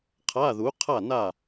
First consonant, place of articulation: uvular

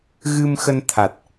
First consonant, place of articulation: velar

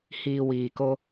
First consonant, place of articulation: glottal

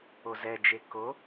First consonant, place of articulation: alveolar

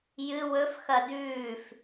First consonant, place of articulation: palatal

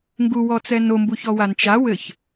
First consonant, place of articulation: velar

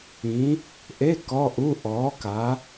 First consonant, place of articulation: glottal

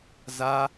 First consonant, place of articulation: alveolar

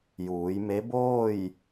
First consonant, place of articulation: palatal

